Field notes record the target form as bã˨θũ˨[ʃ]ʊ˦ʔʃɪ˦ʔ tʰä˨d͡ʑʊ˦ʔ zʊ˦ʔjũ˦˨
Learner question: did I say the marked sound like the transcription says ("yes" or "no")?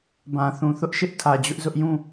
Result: no